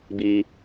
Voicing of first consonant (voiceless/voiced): voiced